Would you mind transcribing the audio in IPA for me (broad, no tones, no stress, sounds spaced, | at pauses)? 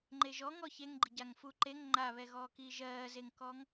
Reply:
ŋ͡ǃ e ʒ ɔ ŋ ɔ ç e ŋ ɡ͡ǃ i ɟ a ŋ f u ǃ e ŋ ŋ͡ǃ a β ɛ ɣ ɔː k iː ʒ ɜː z e ŋ k ɔ ŋ